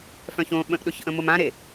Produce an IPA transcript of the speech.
f œ̃ ç õ ɓ ə̃ ʔ ɗ ʊ ç ʔ ə̃ m ʊ m ã ɾ e

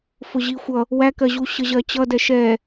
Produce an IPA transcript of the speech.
f ʊ ʑ i xʷ ʌ | w æ k ɜ ʑ u ɕ ə ʑ ɜ t͡ɕ ʌ d ɛ ʃ ɛ

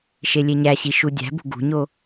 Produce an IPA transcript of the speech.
ʃ e lʲ e ɲ æ ɕ i ʃ u dʲ æ̤ b ṳ ɡ ṳ ɲ o

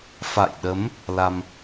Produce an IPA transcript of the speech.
f a̰˧˨ j ɗ ə˨˦ m | l a˧ m

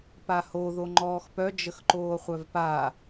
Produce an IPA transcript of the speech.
p a h o ð o ŋ͡ǃ ɔː x p œ d͡ʒ ə x ǃ oː χʷ œ v p a

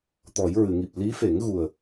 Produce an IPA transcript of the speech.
t̪ ɔ˨˩˦ j ɹ ɨ˨˩˨ ŋ i˨˩ p̚ l i˧˥ f e˨˩˦ ŋ ɣ u˨˩ ə̯

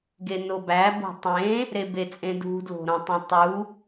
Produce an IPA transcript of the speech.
ɡ e n o b æ b o̤ tˤ ẽ | ɾ e b e t͡sʼ ẽ d ṳ d l o̤ ɾ õ tˤ ĩ tˤ u

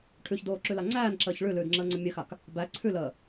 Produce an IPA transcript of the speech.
ʈʰ ʉ ç d oː ǁ ʉ l a ŋ͡ǀ æː n ǁ əː ç ɭ ʉ l ʉː d ŋ͡ǁ əː ŋ͡ǀ ə mʲ ɘ x a k | b æ ǀʰ ʉ l əː

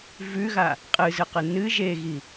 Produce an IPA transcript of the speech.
v ʉ ɣ a | qʼ ɨ z ɨ q ɨ n ɨ ʒ e ɣ i

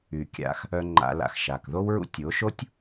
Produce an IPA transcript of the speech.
y˨ kʲ a̰˧ x | œ˧ ŋ͡ǃ a̰˧ l a̰˧ x ʃ a˨ k ð o˦ w ɹ ṵ˦ tʲ o˨˦ ʃ o˦ tʲ

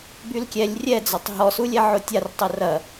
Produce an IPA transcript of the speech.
b y l kʲ ɛ lʲ rʲ ɛ d͡z ɔ tˤ ɦ ɔ s u lʲ ɛ ʕ o tʲ a r tˤ ə r ɐ

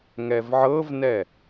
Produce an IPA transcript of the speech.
ŋ ɛ v ʕ ɤ v n ɛ

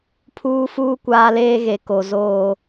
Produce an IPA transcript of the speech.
pʰ uː˦ f uː˦ kʷ aː˦ l eː˦ ɣ e˨ k o˨ z oː˦˨

